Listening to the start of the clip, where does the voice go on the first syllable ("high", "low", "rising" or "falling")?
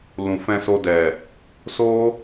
low